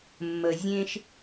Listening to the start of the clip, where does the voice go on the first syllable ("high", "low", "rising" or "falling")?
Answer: low